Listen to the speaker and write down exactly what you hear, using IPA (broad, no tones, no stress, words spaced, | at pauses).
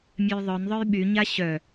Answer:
mʲœjðˤœnðˤœj ɓyɲa ɕœ